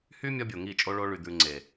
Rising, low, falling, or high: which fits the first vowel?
high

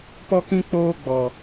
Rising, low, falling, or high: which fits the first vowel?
high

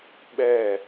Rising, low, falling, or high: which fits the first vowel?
falling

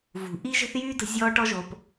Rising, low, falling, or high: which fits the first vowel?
low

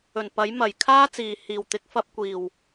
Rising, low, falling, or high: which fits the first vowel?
low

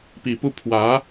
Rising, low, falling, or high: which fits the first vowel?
low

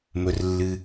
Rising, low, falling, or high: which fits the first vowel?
low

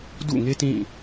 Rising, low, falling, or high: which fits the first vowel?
falling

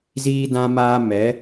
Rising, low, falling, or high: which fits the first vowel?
high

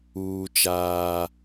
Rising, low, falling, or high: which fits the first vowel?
high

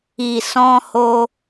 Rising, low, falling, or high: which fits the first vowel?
low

